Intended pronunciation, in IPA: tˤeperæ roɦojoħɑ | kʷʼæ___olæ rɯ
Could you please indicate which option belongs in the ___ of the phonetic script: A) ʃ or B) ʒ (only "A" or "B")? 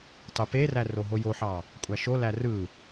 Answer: A